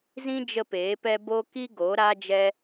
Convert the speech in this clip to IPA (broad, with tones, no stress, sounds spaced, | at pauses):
z ĩ˦ d͡ʒ ə˦ p eː˨˦ p ɛ˦ b o˦ k i˦ ɡ o˨˦ ɾ a˦ d͡ʒ ɛ˦